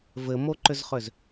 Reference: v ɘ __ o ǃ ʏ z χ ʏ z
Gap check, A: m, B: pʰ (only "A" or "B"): A